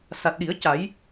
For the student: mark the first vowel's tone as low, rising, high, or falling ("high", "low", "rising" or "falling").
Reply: low